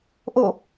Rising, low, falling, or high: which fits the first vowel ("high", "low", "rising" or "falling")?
falling